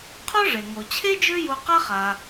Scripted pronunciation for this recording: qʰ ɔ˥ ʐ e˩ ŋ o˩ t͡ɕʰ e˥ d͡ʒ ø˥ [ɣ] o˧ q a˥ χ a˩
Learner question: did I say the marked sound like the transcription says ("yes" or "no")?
no